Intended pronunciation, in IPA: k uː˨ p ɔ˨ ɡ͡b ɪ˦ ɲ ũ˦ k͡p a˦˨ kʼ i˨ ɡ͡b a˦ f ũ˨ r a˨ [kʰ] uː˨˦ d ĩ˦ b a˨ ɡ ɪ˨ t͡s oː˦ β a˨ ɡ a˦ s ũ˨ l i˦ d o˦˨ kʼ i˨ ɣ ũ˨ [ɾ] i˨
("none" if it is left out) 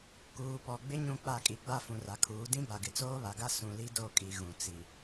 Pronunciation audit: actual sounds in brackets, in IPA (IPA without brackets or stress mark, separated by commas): kʰ, t͡s